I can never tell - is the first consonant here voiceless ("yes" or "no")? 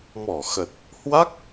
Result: no